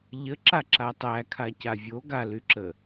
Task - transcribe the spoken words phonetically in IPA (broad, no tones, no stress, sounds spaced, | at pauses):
ʎ ə ǁ a ǁ a tˤ æ kʰ a c a vʲ o ɡ a l y ǁ ə